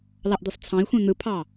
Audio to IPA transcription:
l ɑ ʔ d̪ ɯ sˤ t͡sʰ ɑ̃ i̯ xʷ ẽ n̪ ɯ pʰ ɑ

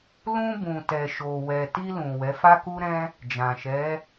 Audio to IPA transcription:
l ũ˧ b ũ˨ t ɛ˨ ʃ o˨ w ɛ˨ t i˧ l ũ˨ w ɛ˨˦ f a˦ k u˦ ɾ ɛ̃˦ | d͡ʒ ã˨ ʃ ɛ˨˦

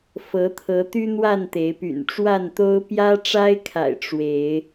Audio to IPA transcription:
f ɤ˨˦ t̪ʰ ɤ˨˦ t̪ y˦ n̪ w a˥˨ n t̪ e˨˦ ɪ̯ p y̰˨˩ n ʈ͡ʂ w a˥˨ n t̪ o˦ ʊ̯ p j ä˦ ʈ͡ʂ a˦ ɪ̯ kʰ a̰˨˩ ɪ̯ ʈ͡ʂ w e˨˦ ɪ̯

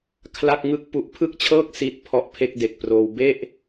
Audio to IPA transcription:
kʰ l a˥˩ k̚ ŋ ɯ˥˩ k̚ p u˦˥ ʔ pʰ ɯ˥˩ k̚ t͡ɕʰ ɤː˥˩ k̚ s i˦˥ t̚ pʰ ɔ˦˥ ʔ pʰ e˥˩ k̚ d e˨˩ k̚ p r oː˧ w b e˥˩ ʔ

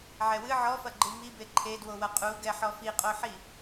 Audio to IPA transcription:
ʕ ɛ w ɨ ʕ ɔ f ɐ ɡ͡ǃ ɨ m i b e ǃʰ e d w o w ɐ qʼ u ɡ ɛ ħ ɔ f i qʼ o ħ i

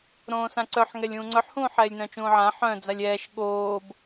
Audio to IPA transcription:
ɾ õː s ã ǀ œ ħ ŋ ɛ lʲ ũː ŋ͡ǀ œ ħ h ũː ħ ɛː lʲ n œ̃ t͡ʃ ũː ʕ ã ħ œ̃ d͡z a lʲ ɛː ʃ ɠ oː b

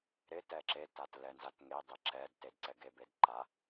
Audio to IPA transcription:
ɾ ɪ t ɛ ǁ e t a t l ɛ n z a t ŋ e dˤ e ǁ ɛ d t e d ǀ ɛ ɡ e b e d ǃ a

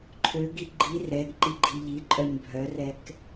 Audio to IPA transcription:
ǃʰ ø ɡ i ɡ͡ǃ i r ɛ ɡ ǃ i ɡ͡ǃ i ʎ i ǃʼ œ ɲ bʱ œ r ɛ k

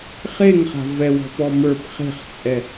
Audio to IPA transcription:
χ e ŋ χ a̤ v ɛ w ɔ̤ p ɔ m ə˞ p χ e̤ χ t͡sʼ ɛ

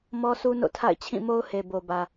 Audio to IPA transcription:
m ɔ˦ sʰ u˦ n o̰˦˨ tʰ a̰˦˨ ɪ̯ t͡ɕʰ ĩ˦˨ m o˦ ʊ̯ h e˨ b o˨ b ä˨

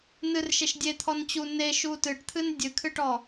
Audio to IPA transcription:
n ɨ r ʃ e ʃ dʲ e t̪ʰ ɔ n t͡ɕ u n e ʃ u t ɨ ʈ t̪ʰ ɨ n dʲ ɨ kʰ ɨ ʈ ɔ

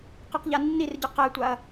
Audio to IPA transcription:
q ɯ q ʎ a nː i r ɟ ɯ q ɛ tʷ a ɐ̯

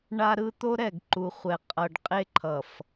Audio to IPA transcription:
ɳ a˦ ɾ ɯ˦ t̪ o˦ ɾ ɛ˦˨ ɡ ǃ u˨ χʷ ɛ˨ qʼ ʌ˨ ɖ qʼ e˦ ǃʰ ʌ˨ f

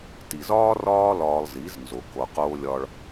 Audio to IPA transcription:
t i˨ z ɒː˦ r ɒː˦ l ɒː˧ lˠ z i˨˦ z n z o˨ k o˨ q oː˧ lʲ ɒ˧ ɭ

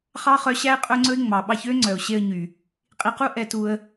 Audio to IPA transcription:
χ ɑ˦ χ œ˧ ɕ æ˦ ɪ̯ qʼ ɵ˦ ŋ͡ǀ ɵ˦ ɪ̯ ŋ͡m ɑ˨ ɓ ɑ˦ ç ø˦ ŋ͡ǀ œ˨ ʊ̯ ɕ e˧ ə̯ ɲ y˨ | qʼ i˧ q u˦ ʔ ɛ˧ t u˧ ə̯

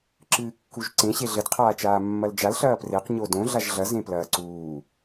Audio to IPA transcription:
ǁ ɨː kː u ʒ ǀ ẽ ɕ e ɮ ɘ d qʰ aː t͡ʃ aː mː ɐ l d͡ʒ a l ɬ ɐː p r e q ɲ o d õ ɮ a ʒ ɮ ɐ z ẽ p l ɐː ǀ uː

